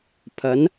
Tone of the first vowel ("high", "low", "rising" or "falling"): rising